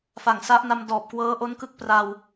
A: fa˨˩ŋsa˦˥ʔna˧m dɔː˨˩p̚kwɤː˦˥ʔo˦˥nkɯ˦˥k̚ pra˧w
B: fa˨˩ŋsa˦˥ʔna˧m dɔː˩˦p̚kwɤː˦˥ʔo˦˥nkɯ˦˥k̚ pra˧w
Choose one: A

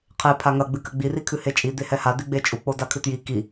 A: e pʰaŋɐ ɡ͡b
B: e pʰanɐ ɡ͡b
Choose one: A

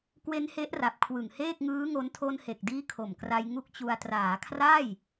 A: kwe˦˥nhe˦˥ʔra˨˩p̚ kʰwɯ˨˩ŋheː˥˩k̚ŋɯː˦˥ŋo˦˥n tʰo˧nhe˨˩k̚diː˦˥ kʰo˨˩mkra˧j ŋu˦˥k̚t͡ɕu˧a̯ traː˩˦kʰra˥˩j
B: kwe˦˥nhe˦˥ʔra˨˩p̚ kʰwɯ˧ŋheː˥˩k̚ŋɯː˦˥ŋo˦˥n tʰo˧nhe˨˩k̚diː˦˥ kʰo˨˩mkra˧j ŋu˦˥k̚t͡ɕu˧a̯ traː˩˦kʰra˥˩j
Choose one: A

